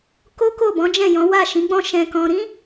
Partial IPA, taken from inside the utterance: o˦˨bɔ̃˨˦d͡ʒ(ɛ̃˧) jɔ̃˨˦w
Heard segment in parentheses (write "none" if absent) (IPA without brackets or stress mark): ɛ̃˦˨